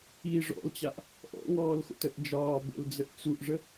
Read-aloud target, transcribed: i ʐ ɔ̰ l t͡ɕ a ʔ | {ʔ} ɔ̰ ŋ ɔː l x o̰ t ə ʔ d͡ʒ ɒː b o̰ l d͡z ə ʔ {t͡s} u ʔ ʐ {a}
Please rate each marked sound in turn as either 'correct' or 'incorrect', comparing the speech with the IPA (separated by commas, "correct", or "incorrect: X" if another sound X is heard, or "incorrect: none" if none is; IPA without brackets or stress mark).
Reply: correct, correct, incorrect: ə